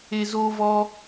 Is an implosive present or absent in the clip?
absent